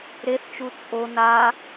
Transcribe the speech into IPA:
ɾeθt͡ʃu t͡sʼo na

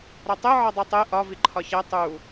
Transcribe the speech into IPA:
ɾɒtˤe ʕɒdˤutˤe ʔɒ viǃʰɒçæ tˤu

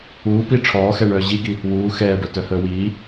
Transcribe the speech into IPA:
uːpi ʈ͡ʂʰɔːxɛɳœː ʑiɡi | wuː xɛːɖœ tœhəːwiː

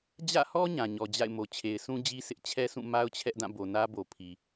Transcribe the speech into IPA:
d͡ʑä̰˦˨hɔ˦ ɲã˨ɲɔ˨d͡ʑa̰˦˨ɪ̯mo˨ t͡ɕʰe˨ɪ̯sũ˦d͡ʑi˦ sʰɪ˦ʔ t͡ɕʰɛ˦sũ˦˨ ma˦ʊ̯t͡ɕʰɛ˦ʔdã˦˨ bo˨nä˦bo˨pʰi˨

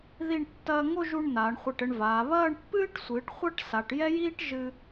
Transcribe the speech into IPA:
ði˥˧ɳ tːɐː˧ ŋo˥˧ʒu˧ɳ naː˩˧ɳχʷi˧˩ʈɘ˧ɳvaː˩˧ βɐː˥˧ɳpːɨː˥ʈsʷɨː˩˧ʈ χʷɐ˥ʈsa˩˧ʈjɛ˥jiː˥ʈ ʒɨ˧

